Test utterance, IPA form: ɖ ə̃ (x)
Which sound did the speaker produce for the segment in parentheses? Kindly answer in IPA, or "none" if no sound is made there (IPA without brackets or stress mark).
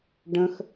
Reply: x